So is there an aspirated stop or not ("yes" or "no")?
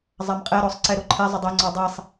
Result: yes